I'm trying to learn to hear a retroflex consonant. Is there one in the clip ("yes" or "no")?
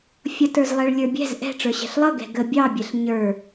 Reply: yes